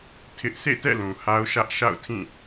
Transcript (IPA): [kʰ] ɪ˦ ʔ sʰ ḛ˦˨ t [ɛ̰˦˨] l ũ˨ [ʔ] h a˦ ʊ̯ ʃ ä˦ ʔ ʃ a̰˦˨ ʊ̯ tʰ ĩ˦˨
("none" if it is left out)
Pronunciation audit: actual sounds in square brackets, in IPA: tʰ, ɛ̰˦˨, none

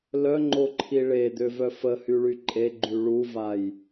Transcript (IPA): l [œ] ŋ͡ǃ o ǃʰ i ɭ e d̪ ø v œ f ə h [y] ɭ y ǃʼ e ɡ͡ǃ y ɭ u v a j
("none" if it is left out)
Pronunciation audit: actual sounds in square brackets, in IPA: œ, y

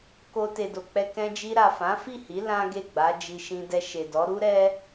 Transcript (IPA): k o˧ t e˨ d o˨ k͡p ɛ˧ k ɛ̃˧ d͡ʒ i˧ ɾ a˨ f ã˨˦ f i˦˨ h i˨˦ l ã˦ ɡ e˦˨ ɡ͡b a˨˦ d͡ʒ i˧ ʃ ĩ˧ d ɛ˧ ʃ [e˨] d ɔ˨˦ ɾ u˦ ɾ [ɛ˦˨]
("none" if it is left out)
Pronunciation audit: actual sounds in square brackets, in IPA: e˨, ɛ˦

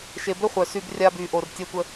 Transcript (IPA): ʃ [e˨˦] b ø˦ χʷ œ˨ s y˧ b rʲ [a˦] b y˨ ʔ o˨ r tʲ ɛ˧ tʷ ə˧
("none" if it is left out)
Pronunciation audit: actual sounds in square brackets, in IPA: e˨, a˧

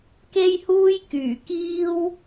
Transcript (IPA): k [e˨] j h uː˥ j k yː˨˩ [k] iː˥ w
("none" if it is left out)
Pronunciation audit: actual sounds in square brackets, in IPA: e˥, k

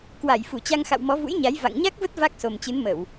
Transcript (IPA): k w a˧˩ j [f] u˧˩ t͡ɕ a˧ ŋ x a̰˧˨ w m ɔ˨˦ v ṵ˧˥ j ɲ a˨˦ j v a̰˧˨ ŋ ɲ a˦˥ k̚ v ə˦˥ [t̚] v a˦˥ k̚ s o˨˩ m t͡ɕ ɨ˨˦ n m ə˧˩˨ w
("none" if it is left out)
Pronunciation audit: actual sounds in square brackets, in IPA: f, t̚

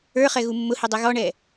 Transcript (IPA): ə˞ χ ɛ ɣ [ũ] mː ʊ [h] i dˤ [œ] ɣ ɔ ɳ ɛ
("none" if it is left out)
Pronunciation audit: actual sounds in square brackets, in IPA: u, h, ɛ

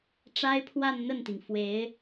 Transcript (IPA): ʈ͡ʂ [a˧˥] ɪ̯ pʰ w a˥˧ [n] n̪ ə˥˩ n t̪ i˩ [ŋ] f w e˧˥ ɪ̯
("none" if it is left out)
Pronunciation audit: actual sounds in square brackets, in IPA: a˥, n, ŋ

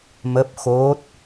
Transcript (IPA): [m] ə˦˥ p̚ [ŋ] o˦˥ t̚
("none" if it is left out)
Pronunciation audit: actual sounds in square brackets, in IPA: m, x

